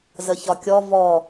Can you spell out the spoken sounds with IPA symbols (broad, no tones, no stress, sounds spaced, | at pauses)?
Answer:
z ə ç ɒ kʲ ɔ v ɔ